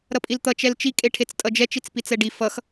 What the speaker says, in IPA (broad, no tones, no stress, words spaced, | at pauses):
ɾʌpʼilt̪ʌ t͡ʃɛlt͡ʃi kʼeʈʰet͡stʼʌd͡ʒɛ t͡ʃit͡spit͡sɛɖi fʌx